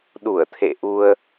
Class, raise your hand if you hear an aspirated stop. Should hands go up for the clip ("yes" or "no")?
yes